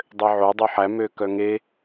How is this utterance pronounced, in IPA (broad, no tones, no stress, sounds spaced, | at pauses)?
dˤ ø ʕ o dˤ ʉ ħ æ m ø k œ ŋ e